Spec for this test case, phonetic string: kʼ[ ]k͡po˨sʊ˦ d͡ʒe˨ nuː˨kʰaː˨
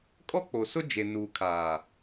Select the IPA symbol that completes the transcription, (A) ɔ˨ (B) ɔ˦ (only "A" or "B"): B